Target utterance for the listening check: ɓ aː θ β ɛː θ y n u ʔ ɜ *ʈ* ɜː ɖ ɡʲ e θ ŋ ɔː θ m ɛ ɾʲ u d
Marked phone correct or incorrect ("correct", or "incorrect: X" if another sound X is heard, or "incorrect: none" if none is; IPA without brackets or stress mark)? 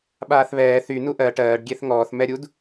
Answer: correct